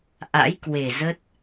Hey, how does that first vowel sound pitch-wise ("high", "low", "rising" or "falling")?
rising